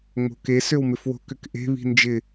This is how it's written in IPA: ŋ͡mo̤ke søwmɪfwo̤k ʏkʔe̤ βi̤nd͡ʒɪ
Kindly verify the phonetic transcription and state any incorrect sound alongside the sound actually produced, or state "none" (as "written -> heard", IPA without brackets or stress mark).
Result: none